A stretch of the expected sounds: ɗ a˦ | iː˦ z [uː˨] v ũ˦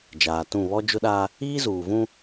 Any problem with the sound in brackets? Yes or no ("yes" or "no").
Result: no